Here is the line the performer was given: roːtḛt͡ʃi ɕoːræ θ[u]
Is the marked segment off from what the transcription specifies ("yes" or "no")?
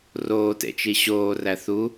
no